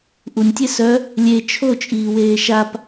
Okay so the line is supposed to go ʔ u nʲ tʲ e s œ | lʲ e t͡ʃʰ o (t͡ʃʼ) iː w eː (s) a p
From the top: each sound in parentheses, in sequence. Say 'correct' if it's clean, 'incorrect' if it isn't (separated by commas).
correct, incorrect